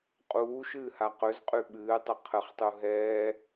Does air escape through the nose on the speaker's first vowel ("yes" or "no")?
no